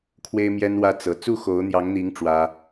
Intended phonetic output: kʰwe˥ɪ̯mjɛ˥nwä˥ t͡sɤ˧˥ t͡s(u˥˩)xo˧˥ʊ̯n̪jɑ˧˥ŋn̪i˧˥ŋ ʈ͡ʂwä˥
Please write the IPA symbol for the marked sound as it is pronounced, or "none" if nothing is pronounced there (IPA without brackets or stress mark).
u˥˩